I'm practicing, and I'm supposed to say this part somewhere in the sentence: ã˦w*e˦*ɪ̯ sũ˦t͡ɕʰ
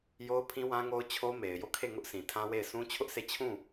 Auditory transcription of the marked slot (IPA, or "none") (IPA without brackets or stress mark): e˦˨